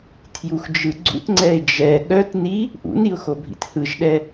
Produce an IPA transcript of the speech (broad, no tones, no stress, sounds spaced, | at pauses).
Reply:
tʰ j u x d͡ʒ ɯ ɡ͡ǀ ṵ t ŋ͡ǀ ɛ ɪ̯ d͡ʒ ɛ ɠ œ t n i | ʔ ṵ n i ʊ̯ x o bʱ ḭ t h ɯ ʒ ɗ ɛ